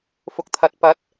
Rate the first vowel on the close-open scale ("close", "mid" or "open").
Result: close